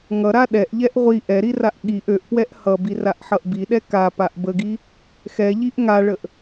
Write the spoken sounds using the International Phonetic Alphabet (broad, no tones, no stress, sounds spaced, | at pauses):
ŋ ʌ ɾ a ɗ ɛ ʔ ʎ ɛ ʔ ʁʷ i ʔ ɛ ɾ i r a ʔ ɠ i ʔ ø ʔ p w ɛ ʔ h ʌ b i r a ʔ ħ ʌ ʔ b i ɗ ɛ k a p a ʔ b ə ɡ i | x ɛ ʎ i ʔ ŋ a ɭ ə ʔ